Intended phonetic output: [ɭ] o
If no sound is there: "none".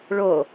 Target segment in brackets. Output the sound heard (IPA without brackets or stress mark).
ɭ